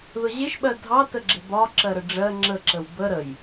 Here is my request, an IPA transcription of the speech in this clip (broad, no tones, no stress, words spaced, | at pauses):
ðʊʑɪʃɓɜ dʱɑtəɡ͡ǁɪ bɒ ǁɜɾəɖ͡ʐɜ ŋ͡ǁəǁəw bə ɾəj